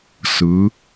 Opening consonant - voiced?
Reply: no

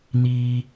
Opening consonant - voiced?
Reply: yes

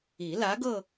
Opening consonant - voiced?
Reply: yes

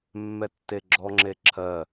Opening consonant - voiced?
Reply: yes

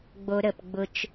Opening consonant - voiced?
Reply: yes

